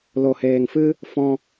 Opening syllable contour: low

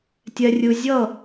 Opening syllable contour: low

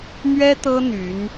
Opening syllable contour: high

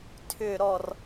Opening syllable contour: falling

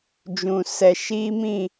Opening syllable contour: low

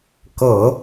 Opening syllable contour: low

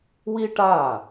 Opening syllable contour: high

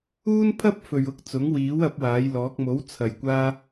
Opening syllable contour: high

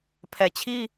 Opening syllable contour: low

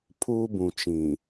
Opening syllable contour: high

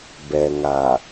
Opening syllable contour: low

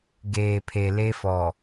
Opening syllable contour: low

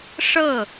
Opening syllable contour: falling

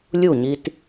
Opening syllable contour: falling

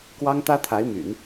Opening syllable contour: high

